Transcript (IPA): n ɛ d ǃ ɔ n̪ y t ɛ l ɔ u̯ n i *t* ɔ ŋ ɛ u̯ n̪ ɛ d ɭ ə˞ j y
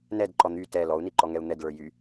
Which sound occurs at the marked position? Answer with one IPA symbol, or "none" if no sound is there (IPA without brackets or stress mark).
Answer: ǃ